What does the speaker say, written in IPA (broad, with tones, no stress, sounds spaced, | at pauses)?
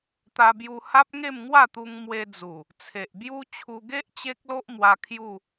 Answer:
t̪ a˧ b j u˧ h a˦ p̚ ŋ e˥˧ m ŋ w a˥˧ t̪ u˧ ŋ m w e˧ d͡z u˨˩ | t͡sʰ e˨ ʔ b j u˦ t͡ɕʰ u˧ ɡ e˦ ʔ t͡ɕ e˦ k̚ l o˦ ʔ m w a˧ kʰ j u˥˧